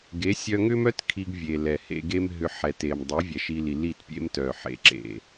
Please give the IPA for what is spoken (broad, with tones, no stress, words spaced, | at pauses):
ɡe˨˦sʲœ˧ŋʏ˦mœ˦t kʰi˧ɡvʲe˨lɛ˨ hḛ˧ɡe˦mɦʏ˧ ħɛ˨te˨m dˤe˨˦ vʲɛ˨ʃi˧li˨ li˦˨tpʲḛ˦m tœ˨ħḛ˨ ǁḛ˨